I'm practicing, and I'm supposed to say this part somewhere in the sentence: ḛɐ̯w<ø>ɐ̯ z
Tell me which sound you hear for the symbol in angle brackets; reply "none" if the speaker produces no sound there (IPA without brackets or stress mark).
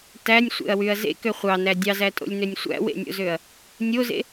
y